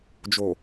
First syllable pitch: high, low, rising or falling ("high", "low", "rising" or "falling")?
low